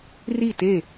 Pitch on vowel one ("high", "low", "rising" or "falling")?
falling